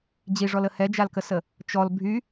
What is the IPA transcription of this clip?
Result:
d͡ʑ i ʐ ɔ l ə h ɛ d͡ʒ a l k ə s ə | t͡ʃ ɔ l bʱ y

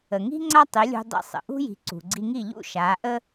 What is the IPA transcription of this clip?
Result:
ə˩ ŋ i̤˥ ŋ͡ǀ a˥ tˤ i˩˥ lʲ ṳ˧ dˤ ḭ˧ sˤ ə̰˩ ʔ ṳ˥ j i̤˩˥ ǀ ṳ˩ ɡ͡ǀ i˧ ŋ i˥˩ ʎ ṵ˥˩ ʃ aː˩˥ ʔ ə˥

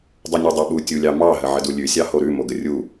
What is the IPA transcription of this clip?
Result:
dˤ u nʲ u dˤ o ɓ u tʲ u lʲ ɑ m ɑ ɦ ə ʕ ə d u lʲ ʉ sʲ ɑ h o ɾ ʉ m o ɡ ə rʲ u

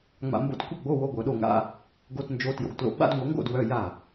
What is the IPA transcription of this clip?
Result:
ŋ͡m a̰˨ m b o̰˧˥ t kʷ ə˥˩ ɡ͡b o˧˥˧ w o˧˥˧ ɡʷ œ˨˩˦ ɗ o˥˩ ŋ a̰˧˥˧ | ɡ o˧˥˧ t n d͡ʒ o˧˥ t j o̰˨ ɡ t l o̰˨˩˦ ɡ͡b a̰˧˥˧ d ŋʷ ʌ˨˩˦ ŋ ɡ o̰˥˩ d w œ˧˥˧ j a˥˩

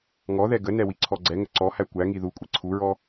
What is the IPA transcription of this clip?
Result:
ŋ ɔ ð ɛ ɡ ə n ɛ w i ǀʰ ɔ ɡ͡ǀ ɛ ŋ ə ǀ ɔ h æ kʷ æ ŋ i ð u kʷʼ i ǀʰ u ɹ ɔ

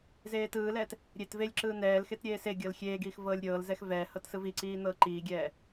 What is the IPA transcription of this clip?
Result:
z eː t ɯː l ɛː t | ɾʲ e t v e lʲ ǁ ɯː n̪ ɛː l x e t ɾʲ eː s e ɡʲ ɤ l xʲ eː ɡ iː x v ɤː lʲ ɾʲ ɤː l z ɛ x v ɛː h ɤ t s ɯ v i ǀ iː n̪ ɤː ǃ iː ɡʲ ɛː

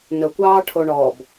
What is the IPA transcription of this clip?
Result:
n ɵ kʷ ɑː ʈʰ o ɳ ɔ b

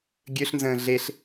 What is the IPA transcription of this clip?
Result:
ɡʲ ø ɬ n z ə̃ː ɮ e ɬ

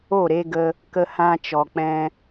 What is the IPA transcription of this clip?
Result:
o˦˨ ɾ e˧ ɡ ə˧ | k ə˧ h ã˧ t͡ʃ ɔ˨ k͡p ɛ̃˧

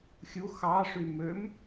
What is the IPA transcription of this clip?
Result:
xʲ u x ɑ ʂ y m ø m

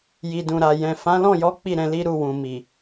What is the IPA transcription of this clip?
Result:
j i˨ d ũ˨ ɾ a˨ j ɛ̃˨ f ã˨˦ l ɔ̃˦˨ j ɔ˨˦ k͡p i˦˨ ɾ ɛ̃˧ l i˦ ɾ u˦˨ w ũ˨ m i˨

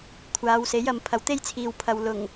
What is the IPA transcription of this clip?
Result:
kʷʰ aː˨˧ w s e˨˥ j ɐ˨ m pʰ ɐ˨˧ w t̪ e˥ j t͡sʰ iː˨ w pʰ ɐ˨ w l ʊ˨˩ ŋ

